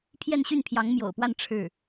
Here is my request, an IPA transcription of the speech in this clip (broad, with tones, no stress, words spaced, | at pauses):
pʰjɛ˥˧nɕy˥˩npʰjɑ˧˥ŋ mjo̰˨˩ʊ̯pwa˥˧n ʈ͡ʂʰɻ̩˥˩